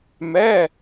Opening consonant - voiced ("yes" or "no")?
yes